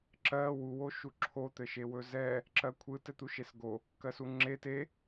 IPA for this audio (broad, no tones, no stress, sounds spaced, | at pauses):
ǁ ɜ w u w o ʃ u ǁʰ o t̪ ɘ ʃ e w ɵ z ɛ | ǁ ɜ kʷʰ ɯ t ɘ t̪ u ʃ e s ɡ o | k ɜ s u ŋ͡ǁ e t e